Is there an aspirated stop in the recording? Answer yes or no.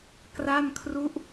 yes